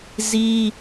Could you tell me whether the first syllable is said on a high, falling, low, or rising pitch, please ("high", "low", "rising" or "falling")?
high